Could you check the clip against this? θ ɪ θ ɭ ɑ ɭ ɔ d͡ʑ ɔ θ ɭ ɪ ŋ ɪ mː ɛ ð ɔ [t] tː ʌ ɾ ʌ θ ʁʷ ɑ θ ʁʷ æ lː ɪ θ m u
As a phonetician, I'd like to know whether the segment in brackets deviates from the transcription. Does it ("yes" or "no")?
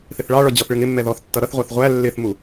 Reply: yes